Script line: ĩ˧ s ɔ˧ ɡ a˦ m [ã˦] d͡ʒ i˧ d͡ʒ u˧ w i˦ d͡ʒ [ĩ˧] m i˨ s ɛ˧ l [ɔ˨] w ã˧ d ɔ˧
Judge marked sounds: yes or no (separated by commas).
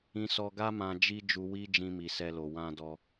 no, yes, no